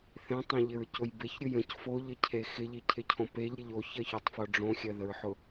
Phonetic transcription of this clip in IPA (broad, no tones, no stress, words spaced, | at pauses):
θẽtˤẽʎɪɹcʊj beçɾʲʊ jə̃c foʎəcʰe xɪʎicʰɪcʰõ peʎɾʲəʎ oçɜçotˤfo ɖ͡ʐõxʲɜðəɹħʊ